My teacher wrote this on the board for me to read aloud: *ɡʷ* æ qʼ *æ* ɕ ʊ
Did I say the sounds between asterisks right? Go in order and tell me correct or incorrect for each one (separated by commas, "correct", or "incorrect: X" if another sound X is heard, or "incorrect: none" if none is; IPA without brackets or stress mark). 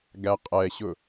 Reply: incorrect: ɡ, incorrect: ɛ